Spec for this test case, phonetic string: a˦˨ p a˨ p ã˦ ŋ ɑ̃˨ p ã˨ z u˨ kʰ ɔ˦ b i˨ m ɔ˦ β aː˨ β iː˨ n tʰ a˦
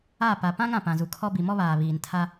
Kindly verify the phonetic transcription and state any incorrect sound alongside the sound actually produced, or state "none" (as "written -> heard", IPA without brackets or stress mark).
ɑ̃˨ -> ã˨